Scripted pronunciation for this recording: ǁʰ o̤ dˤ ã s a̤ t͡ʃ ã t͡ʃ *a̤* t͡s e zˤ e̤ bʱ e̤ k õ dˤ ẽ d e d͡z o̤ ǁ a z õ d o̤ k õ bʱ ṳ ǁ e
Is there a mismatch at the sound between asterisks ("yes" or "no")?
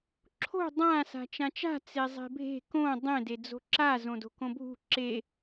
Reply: no